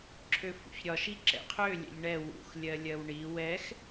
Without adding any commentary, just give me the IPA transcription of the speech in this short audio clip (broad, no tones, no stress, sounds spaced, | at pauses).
ǁʰ ø f ṵ ç ɾʲ ɒ ʃ i ǁ ɛ̰ qʰ ø lʲ ɛ̰ ʎ ɳ ɛ w ṵ x lʲ ɜ lʲ ɜ w ɳ i w ɛ x